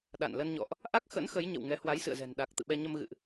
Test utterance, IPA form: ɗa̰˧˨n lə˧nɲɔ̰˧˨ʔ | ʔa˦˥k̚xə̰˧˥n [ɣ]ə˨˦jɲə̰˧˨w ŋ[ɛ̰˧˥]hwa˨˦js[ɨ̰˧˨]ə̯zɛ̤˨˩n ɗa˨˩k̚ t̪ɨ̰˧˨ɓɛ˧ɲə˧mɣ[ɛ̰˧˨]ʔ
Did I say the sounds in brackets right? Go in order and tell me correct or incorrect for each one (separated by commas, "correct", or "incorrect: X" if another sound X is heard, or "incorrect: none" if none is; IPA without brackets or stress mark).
incorrect: x, incorrect: ɛ˨˦, correct, incorrect: ɨ̰˧˨